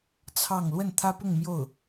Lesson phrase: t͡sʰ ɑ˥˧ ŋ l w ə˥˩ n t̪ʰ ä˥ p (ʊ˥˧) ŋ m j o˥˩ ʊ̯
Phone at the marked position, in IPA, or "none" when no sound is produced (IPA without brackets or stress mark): ʊ˥˧